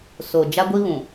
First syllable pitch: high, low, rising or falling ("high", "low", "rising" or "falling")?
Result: low